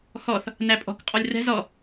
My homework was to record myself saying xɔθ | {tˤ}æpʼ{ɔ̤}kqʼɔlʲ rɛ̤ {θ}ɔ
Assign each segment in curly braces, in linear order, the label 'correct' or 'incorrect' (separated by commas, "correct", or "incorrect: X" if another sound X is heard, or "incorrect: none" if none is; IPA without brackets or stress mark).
incorrect: n, correct, incorrect: z